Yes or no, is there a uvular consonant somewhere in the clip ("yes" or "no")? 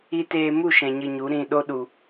no